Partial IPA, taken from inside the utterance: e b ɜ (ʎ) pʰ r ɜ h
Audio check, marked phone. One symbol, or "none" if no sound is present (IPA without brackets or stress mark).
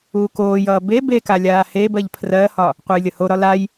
ʎ